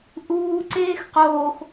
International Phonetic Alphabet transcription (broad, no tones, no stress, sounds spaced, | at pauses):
ʔ uː ǀ eː x q oː x